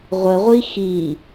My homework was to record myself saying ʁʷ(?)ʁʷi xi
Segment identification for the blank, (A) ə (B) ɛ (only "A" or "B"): A